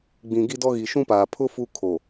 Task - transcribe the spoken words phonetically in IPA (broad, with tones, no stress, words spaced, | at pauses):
ɡ͡bĩ˨ɡi˦dɔ˦ ɣi˨ʃũ˦paː˨ pʰʊ˦ fu˦kʰo˨